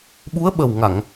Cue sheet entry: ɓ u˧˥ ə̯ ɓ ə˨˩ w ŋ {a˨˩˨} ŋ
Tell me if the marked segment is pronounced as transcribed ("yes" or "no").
yes